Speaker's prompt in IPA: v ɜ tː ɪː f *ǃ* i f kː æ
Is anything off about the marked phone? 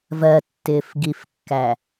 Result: yes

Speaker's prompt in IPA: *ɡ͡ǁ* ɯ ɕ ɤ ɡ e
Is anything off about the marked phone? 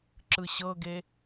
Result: yes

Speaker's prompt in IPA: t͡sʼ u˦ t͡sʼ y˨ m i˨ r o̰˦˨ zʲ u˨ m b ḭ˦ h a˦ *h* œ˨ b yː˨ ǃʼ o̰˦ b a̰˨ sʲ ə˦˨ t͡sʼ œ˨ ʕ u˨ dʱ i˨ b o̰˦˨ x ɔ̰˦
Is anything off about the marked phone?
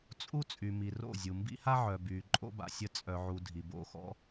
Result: yes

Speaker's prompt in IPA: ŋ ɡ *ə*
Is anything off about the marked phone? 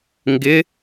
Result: yes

